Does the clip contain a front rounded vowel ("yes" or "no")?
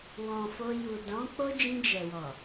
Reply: no